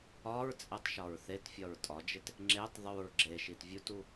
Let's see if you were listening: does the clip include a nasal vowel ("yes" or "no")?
no